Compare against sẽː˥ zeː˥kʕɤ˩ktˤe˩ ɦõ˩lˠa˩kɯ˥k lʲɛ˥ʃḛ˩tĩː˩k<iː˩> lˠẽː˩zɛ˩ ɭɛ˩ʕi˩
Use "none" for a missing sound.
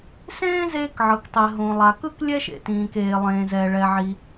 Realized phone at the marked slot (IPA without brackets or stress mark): eː˩